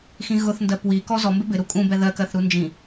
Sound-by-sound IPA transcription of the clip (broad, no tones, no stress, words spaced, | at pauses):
xĩɣʊθndɜ pwi kɔzɔ mbɪbɪ ɾukʼũbɛ ðɜkɜθɾu nd͡ʒĩ